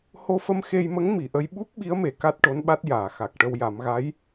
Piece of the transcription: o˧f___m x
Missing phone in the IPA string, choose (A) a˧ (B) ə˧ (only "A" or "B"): B